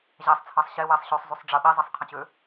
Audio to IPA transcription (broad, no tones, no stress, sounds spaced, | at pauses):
ʑ æ sˤ t͡sʰ ɑ sˤ ɕ e w e sˤ ɕ ø sˤ zˤ y sˤ ɖ͡ʐ ə ɓ i zˤ i sˤ qʰ ə̃ t͡ɕ ø